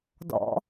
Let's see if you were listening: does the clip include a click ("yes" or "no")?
no